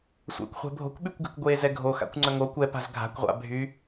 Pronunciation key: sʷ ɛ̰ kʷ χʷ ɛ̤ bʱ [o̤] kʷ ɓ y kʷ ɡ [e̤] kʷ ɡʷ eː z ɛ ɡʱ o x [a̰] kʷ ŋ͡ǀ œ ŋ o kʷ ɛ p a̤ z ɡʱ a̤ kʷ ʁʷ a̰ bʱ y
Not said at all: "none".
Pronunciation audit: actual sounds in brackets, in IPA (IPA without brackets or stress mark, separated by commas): o̤, e̤, a̰